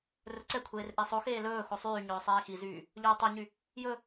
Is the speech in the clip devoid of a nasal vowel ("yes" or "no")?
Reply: yes